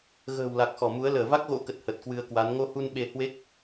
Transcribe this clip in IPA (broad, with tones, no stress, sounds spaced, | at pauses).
ɣ ə̤ː˨˩ w l a˨˩ k̚ x ɔ˧˩ m u˨˦ ə̯ l əː˧˩ v a˦˥ k̚ ɣ o̰˧˥ k ə˨˩ t̚ h ə˨˩ t̚ k w ɨ˧ ə̯ k w a˨˦ n ŋ o˧ h u˧ n ɓ e˧ h w e˦˥ k̚